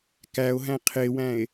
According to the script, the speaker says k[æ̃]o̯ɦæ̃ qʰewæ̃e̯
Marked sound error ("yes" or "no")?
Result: yes